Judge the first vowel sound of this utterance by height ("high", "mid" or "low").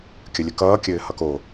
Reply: mid